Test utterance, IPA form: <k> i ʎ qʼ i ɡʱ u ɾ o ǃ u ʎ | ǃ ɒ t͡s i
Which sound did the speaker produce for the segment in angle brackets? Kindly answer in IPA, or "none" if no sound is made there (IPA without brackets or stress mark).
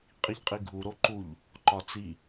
qʼ